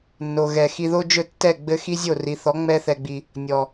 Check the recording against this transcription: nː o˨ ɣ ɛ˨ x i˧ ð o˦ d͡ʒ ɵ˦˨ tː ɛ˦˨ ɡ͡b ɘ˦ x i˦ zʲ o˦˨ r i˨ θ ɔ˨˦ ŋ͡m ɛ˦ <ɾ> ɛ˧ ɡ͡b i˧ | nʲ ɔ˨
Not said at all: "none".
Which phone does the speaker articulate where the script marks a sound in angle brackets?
θ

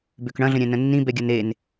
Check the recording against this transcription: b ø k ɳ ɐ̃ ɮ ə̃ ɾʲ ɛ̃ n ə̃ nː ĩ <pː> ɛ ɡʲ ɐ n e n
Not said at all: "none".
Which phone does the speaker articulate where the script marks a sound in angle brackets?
b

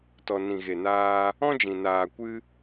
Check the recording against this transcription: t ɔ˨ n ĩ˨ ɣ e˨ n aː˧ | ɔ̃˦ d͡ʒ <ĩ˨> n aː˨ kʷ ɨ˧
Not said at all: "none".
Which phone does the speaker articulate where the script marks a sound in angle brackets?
ĩ˨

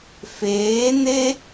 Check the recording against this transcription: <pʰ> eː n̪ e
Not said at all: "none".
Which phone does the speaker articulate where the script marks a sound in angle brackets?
f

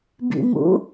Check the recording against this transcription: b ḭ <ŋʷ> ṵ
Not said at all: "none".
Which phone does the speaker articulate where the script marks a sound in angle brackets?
m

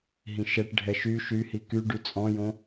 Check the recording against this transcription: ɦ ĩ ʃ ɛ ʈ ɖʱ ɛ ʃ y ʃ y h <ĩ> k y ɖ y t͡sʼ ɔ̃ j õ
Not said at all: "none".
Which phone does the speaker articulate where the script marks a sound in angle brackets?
i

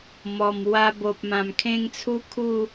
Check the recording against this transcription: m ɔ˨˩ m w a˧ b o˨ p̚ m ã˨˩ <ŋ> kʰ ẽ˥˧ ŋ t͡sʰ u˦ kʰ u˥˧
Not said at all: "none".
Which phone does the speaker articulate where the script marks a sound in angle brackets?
m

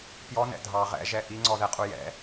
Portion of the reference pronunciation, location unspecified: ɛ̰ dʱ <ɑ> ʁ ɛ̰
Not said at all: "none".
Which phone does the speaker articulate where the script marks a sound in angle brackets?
ɑ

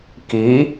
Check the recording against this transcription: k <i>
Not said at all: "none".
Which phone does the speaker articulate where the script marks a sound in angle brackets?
i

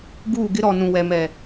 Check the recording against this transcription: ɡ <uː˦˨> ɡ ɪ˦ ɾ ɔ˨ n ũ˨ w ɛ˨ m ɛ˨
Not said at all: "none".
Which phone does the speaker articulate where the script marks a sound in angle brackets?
uː˦˨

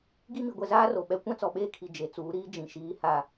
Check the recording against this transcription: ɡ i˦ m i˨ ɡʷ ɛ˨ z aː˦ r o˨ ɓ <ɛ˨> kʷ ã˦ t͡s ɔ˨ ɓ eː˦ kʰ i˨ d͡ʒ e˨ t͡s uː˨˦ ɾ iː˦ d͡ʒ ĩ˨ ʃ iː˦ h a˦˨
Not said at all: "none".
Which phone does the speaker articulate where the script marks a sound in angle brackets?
ɛ˦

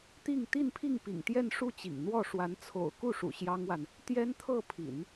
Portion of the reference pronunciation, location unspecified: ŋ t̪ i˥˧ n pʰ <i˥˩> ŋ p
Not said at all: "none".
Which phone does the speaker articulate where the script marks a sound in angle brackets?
i˥˩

